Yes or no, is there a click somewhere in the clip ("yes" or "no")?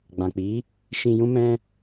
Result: no